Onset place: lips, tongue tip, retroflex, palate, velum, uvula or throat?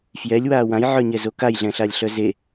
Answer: lips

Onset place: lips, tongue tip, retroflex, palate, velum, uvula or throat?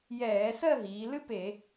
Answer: palate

